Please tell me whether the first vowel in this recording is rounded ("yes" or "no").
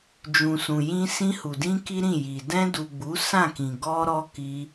yes